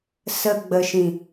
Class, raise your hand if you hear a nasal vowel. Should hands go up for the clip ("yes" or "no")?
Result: yes